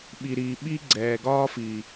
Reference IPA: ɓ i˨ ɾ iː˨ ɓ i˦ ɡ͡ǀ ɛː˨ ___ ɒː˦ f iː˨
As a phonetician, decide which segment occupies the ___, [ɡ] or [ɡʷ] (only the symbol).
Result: ɡ